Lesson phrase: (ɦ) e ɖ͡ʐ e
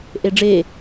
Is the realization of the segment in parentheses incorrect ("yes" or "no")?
yes